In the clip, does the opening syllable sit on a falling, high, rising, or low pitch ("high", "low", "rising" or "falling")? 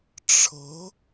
rising